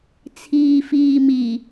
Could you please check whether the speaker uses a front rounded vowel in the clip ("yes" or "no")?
no